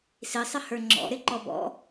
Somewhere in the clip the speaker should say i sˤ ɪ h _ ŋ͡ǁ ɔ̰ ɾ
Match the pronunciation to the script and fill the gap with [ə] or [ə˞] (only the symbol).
ə˞